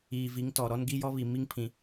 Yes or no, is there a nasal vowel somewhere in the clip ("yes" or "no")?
yes